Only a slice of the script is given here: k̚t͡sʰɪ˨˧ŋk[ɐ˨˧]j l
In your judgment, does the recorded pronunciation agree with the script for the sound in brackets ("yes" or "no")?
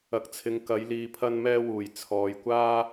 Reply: yes